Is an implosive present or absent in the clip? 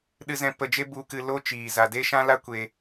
present